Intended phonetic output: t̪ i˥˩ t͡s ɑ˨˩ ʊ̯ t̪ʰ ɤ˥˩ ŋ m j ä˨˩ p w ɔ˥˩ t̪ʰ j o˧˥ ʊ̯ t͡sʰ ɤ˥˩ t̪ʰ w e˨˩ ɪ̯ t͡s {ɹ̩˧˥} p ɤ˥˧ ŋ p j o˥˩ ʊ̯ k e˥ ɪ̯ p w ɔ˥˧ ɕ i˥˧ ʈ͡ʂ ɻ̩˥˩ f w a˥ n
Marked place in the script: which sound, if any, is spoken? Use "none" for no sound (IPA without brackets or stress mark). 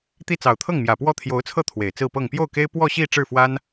ɹ̩˥˧